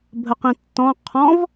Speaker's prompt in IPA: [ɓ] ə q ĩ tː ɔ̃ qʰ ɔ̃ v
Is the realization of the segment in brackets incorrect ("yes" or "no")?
yes